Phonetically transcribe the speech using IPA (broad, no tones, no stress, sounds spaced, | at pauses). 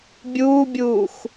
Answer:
bʲ uː bʲ uː x